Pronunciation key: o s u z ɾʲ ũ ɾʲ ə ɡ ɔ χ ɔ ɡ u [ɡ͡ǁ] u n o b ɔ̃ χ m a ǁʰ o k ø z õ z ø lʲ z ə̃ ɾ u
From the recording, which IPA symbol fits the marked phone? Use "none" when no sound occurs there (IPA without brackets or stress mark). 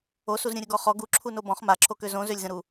ǁʰ